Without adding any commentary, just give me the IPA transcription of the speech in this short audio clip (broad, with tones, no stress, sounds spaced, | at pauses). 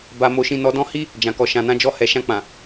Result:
b a˧ m o˧ ʃ ĩ˧ n ɔ˧ d ɔ̃˦ h i˦ | d͡ʒ ã˨ k ɔ˨ ʃ ã˨ n ã˨˦ d͡ʒ ɔ˧ h ɛ˨ ʃ ã˧ k͡p ã˨